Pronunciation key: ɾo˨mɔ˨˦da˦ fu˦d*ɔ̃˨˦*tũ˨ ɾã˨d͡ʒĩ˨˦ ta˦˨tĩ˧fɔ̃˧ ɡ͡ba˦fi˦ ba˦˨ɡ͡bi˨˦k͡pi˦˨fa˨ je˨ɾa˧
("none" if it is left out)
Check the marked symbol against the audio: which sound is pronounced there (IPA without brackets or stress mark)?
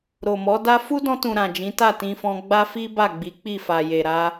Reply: ɔ̃˧